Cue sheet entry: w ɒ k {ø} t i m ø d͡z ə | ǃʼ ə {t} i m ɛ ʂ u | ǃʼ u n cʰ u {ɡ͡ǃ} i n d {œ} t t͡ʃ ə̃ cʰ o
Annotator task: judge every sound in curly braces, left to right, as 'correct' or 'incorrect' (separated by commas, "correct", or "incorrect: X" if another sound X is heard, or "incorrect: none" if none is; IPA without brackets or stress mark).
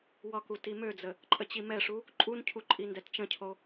incorrect: u, incorrect: t͡ɕ, incorrect: ǃʼ, incorrect: ɛ